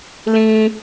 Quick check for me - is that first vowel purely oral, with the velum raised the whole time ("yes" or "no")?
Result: no